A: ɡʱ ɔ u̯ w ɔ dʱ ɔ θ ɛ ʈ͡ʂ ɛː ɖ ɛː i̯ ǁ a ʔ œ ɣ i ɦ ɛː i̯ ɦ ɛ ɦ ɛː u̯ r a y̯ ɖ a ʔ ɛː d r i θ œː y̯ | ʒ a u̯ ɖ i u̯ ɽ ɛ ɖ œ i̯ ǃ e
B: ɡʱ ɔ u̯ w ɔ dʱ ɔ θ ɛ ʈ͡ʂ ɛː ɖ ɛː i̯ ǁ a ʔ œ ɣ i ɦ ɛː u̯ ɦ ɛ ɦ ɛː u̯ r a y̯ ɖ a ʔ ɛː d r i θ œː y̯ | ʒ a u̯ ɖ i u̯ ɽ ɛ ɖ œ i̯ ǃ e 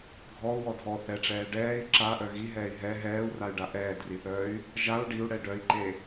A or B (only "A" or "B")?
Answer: A